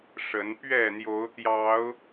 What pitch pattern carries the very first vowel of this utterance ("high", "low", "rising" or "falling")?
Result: rising